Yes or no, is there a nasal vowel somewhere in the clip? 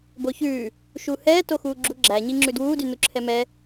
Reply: no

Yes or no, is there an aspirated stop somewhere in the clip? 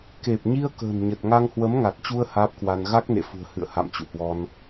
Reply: no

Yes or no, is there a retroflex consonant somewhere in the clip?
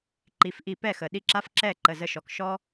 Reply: no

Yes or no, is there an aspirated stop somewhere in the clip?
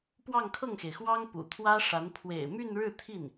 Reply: yes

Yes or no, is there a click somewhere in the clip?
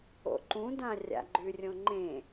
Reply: yes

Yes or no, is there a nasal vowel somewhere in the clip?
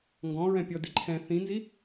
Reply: yes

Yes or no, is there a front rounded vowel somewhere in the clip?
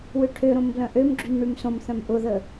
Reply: yes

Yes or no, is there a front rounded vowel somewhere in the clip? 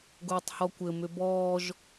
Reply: yes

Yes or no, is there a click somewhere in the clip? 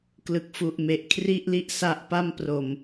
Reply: no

